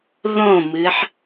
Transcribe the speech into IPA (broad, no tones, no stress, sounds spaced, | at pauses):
ð õ m ɨ ħ